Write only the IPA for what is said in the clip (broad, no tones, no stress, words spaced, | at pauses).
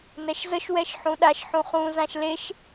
nɛʃzəʃ wɛʃħũɗaʃ ħũχũ zãʃleʃ